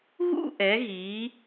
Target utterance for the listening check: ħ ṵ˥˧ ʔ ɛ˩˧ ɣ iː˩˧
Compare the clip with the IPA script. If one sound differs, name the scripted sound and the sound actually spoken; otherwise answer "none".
ħ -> ɣ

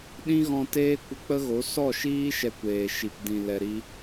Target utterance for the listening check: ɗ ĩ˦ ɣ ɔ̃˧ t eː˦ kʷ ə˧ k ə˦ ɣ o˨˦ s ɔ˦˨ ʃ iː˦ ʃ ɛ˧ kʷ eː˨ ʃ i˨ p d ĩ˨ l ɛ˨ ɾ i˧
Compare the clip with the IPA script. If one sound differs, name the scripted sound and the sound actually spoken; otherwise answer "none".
k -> k͡p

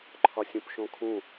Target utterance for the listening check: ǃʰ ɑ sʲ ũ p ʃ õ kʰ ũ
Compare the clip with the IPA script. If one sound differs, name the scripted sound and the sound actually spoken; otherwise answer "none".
ɑ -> ɒ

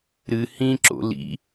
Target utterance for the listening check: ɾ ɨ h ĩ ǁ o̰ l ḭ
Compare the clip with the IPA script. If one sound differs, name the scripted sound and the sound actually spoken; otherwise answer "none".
none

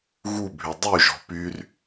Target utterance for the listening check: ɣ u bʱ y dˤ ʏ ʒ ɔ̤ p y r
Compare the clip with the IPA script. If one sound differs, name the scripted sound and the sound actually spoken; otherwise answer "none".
ʏ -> y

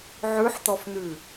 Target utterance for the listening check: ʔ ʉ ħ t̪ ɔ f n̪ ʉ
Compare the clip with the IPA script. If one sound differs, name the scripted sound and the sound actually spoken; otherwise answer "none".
ʔ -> ʕ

